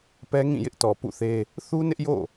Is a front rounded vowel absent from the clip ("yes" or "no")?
yes